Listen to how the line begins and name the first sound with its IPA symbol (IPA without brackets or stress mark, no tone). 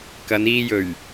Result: k